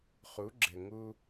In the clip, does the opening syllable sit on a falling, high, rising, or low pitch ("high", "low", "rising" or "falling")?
rising